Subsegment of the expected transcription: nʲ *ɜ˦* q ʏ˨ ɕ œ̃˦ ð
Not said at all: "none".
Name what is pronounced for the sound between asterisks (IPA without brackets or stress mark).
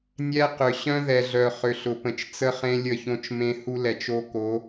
ɛ˦